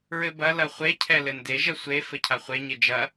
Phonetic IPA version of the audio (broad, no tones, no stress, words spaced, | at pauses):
ɹɘbɐ lɐχʷe cʰɛlɘnde ʒɐsʷe fɘcʰaχʷe ɲed͡ʒɐ